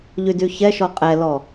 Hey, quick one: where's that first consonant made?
palate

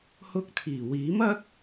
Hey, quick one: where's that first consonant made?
throat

